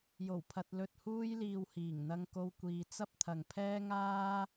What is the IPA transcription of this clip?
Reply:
jo˨˩wpʰɐ˨t̚lɵ˨t̚huː˧j liː˨whiː˨˩ŋn̪ɐ˧ŋ ko˧wkʷiː˨t͡sɐ˥p̚t̪ʰɐ˨ŋ pʰɛː˥ŋaː˥

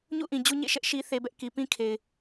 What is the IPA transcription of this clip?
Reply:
ɲṵ˦˨ʔĩ˨ d͡ʑu˦ɲḛ˦˨ ʃɛ˦ʔʃi˦ θe˦bɛ˦ʔ ki˨pĩ˦ kʰe˨ɪ̯

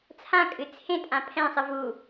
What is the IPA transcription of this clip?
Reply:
t͡sʰãkʼɨ t͡sʰẽtʼã pʰɛ̃sˤɨ vu

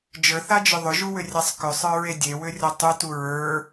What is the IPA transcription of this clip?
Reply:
d͡ʒə˞θad͡ʒʏ ðˤʏʒuwʏrʲasˤ kʏsˤə˞ɹe dʲewʏrʲɒ tˤʏtu ɹə˞

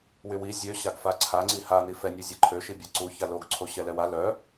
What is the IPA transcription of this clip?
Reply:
wywi zʲø ɕaɡfaǀʰa ŋ͡ǀiha nifɛnʲu zʲɛǃʰøʃi bʲaǀuça loɡǀʰoɕɛ lɛwa lœ

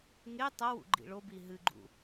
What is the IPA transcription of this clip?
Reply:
ŋe tˤɐwṵ ɡ͡ǃḭɭobi ɦɨɡ͡ǃṵ

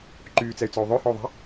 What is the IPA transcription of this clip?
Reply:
ǃyːt͡sɛy̯t͡sɔu̯ ðˤøhɔu̯ðˤa̤

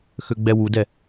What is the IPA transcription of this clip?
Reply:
xøɡ͡bɛwudɛ

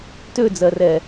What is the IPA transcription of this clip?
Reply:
tød͡zɜrɛ

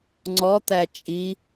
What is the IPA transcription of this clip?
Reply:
ŋ͡ǀɔt̪æ t͡ʃʼi

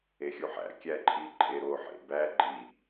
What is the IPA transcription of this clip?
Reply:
exʲuħæ̰ kʲæǃʼi ǃʼeɾo ħḛbæ ɡ͡ǃi

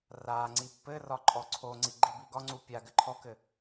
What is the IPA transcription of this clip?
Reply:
raŋ͡ǀi pːɘrɒ ǃʼɔǀʰoŋ͡ǀi ɡ͡ǃibiɡɒŋ͡ǀu pʲaɡɘ ǃʰɔkɘ

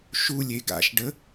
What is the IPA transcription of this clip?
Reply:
ʃulʲe ɡa̰ʃɖə

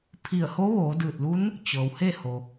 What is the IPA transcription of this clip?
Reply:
pʰi˧˩ə̯ ho˧˥ʋoː˩˧ dɯː˧˩t̚lu˧˥n | t͡ɕɤː˩whe˥˨ho˩

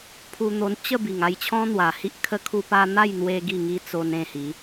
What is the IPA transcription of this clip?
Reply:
pʰu˧n̪o˧nt͡ɕə˥˧bi˨˩ŋ a˥˧jt͡ɕʰɔ̃˦n̪wa˨˩hi˦ʔ kʰə˧kʰu˧pa˧ n̪a˥˧jn̪we˧ ɡi˥˧ŋi˦t͡so˧n ẽ˥˧hi˨˦

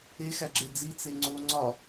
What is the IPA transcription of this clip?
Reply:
exæɡ͡ǁe d͡zit͡se ŋ͡ǀo ŋ͡ǀɒ

